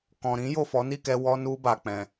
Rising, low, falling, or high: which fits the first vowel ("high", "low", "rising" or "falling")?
low